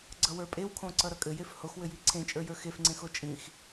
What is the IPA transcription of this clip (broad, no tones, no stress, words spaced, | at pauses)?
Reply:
ɡ͡ǀʌwə˞pʼewkʰõ ǀʌɾʌkʼɘjef hoxwɘji ǀʰẽt͡ʃʼə˞jə˞ xefŋ͡ǀẽxo t͡ʃʼĩx